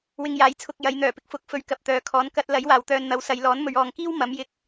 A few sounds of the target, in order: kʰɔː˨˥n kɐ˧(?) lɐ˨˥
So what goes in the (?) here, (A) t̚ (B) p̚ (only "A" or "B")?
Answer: A